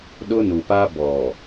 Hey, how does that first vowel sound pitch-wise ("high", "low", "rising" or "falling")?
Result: high